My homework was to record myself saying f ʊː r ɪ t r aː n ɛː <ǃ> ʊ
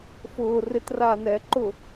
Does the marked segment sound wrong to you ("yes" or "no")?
no